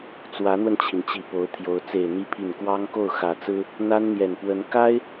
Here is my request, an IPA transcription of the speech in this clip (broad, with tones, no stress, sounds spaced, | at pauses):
t͡s w ä˧˥ n̪ w ə˧ n t͡ɕʰ i˩ n t͡ɕ i˨˩ p o˧˥ ʊ̯ t̪ʰ j o˧˥ ʊ̯ t͡s e˨˩ ɪ̯ n̪ i˧˥ pʰ i˨˩ n k w ɑ˥ ŋ k o˥˩ ʊ̯ x ä˨˩ t͡s ɹ̩˥ | n̪ a˥ n n̪ j ɛ˨˩ n p w ə˧˥ n k a˥ ɪ̯